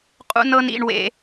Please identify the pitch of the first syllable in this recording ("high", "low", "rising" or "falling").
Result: high